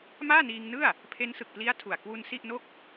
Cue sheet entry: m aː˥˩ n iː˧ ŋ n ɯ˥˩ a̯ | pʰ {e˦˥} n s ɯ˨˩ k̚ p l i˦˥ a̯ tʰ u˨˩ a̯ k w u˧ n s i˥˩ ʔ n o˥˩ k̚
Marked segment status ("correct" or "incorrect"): correct